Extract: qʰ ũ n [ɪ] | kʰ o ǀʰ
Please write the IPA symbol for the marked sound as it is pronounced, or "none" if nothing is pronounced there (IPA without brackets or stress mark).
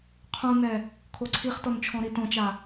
ɛ